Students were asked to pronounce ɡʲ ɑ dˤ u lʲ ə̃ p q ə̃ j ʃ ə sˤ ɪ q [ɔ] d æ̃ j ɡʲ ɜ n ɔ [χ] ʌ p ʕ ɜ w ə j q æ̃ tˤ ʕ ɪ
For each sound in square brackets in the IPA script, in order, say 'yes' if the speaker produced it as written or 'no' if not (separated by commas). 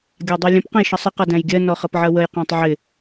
no, yes